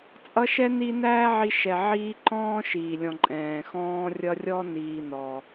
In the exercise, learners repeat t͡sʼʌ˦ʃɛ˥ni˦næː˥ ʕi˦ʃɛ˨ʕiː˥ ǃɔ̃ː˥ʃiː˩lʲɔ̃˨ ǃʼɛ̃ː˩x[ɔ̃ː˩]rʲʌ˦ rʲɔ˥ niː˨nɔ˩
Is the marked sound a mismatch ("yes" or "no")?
yes